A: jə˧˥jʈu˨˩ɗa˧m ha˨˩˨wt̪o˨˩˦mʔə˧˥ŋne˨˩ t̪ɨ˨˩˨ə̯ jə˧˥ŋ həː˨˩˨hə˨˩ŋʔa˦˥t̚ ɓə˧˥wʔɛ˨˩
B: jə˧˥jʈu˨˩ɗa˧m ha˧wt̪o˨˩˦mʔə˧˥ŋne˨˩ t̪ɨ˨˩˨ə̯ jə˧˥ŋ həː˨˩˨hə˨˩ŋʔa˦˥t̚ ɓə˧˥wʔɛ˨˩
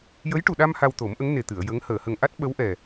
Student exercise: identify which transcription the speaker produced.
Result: B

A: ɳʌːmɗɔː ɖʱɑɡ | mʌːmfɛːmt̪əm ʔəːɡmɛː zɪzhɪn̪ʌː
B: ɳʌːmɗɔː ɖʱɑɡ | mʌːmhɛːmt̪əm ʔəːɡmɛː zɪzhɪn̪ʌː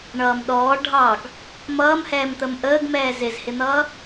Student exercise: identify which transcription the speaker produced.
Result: B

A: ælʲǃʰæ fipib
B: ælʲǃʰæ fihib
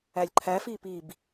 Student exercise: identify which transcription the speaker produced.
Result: A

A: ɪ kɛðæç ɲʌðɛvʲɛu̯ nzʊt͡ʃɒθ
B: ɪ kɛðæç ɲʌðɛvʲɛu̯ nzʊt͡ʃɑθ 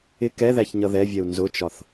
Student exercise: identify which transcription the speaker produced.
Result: A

